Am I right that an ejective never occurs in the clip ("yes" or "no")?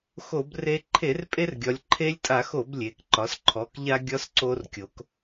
no